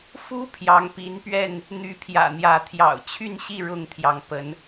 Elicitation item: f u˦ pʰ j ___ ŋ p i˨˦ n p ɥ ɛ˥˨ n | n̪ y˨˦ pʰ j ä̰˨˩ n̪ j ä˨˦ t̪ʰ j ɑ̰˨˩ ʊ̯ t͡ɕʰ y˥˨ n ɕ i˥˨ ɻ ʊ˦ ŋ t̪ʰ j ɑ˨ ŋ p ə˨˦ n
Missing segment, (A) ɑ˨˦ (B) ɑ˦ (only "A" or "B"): A